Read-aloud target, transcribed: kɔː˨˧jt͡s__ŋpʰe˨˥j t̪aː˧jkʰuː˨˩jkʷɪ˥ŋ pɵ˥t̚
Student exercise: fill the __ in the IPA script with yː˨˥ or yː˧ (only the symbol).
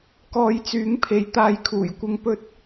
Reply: yː˨˥